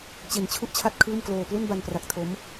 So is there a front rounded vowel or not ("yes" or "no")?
no